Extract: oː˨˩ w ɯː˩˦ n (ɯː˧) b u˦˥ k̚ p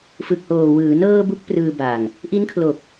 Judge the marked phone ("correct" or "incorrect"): incorrect